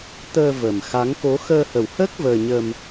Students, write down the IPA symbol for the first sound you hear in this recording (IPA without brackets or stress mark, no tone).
t̪